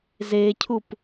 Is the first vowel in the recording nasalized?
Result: no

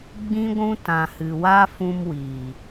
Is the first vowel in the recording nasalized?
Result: yes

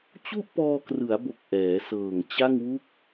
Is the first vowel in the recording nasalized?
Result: no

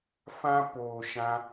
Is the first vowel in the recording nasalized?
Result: yes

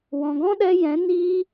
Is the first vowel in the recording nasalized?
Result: yes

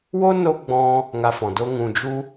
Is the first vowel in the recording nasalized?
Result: no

